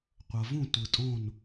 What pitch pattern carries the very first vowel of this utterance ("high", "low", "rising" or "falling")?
low